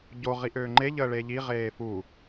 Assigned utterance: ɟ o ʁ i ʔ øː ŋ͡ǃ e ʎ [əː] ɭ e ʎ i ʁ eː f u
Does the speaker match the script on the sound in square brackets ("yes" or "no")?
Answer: yes